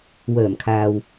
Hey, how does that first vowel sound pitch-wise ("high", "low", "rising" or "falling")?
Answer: low